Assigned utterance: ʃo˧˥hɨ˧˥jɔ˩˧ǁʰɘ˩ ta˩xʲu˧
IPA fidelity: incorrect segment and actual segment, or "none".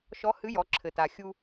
o˧˥ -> ɔ˧˥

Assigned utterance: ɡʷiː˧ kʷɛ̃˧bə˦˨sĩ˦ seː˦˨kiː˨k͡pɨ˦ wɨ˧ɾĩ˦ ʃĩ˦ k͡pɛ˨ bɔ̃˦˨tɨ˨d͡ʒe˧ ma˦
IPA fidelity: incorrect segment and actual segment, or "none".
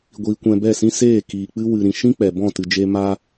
ə˦˨ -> ɛ˦˨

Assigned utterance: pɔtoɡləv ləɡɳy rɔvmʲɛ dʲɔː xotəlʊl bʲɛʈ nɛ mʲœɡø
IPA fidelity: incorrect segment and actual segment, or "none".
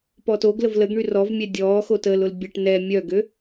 none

